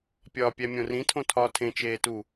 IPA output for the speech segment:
pʲ ɒː pʲ æ mʲ õ r ĩ tʰ õ tʰ ɒː tʰ ẽ t͡ʃ eː t u

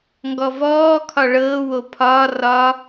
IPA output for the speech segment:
ŋ ɡ ɔ v ɔː kʰ ɒ ɭ ɤː w o pʰ ɒː r ɒ

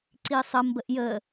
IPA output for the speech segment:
ǀ i sˤ ə m b ə ʔ j ə

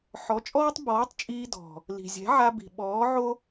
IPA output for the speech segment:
ħ ɔ˨˦ t͡ʃʼ ɔː˦ tˤ b ɔː˨˦ tˤ t͡ʃʼ iː˧ d ɔ̤˨ | l i̤˨ zʲ ɛ̤˨˦ ʕ a˧ b i̤˨ ɓ ɔː˨˦ ʕ o˦

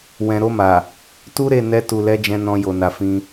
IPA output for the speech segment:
w ɛ̃˨ ɾ o˧ m a˨ | t u˦ ɾ e˦˨ n ɛ˧ t u˨ l ɛ˨˦ d͡ʒ ɛ̃˧ n ɔ̃˧ j o˨ n a˨ f ĩ˧

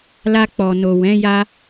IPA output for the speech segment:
l a˧ k͡p ɔ˨ n o˨ w ɛ̃˨˦ j a˦

